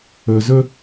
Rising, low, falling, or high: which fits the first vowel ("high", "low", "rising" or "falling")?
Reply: low